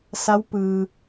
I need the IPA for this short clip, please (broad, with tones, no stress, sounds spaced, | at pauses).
s a˧˥ w p ɯː˩